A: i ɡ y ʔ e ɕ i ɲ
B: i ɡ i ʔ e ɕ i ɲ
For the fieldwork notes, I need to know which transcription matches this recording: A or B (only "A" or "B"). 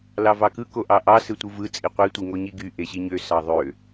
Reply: A